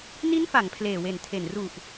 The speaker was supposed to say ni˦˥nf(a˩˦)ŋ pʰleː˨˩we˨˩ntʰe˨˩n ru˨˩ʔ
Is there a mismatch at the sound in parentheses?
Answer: no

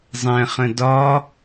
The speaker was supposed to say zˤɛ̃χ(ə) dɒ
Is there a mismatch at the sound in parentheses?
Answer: yes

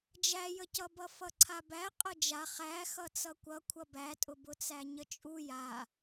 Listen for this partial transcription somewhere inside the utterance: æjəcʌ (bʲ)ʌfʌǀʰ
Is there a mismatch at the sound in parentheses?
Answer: yes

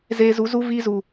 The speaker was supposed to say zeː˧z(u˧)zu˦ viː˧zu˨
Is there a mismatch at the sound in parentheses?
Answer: yes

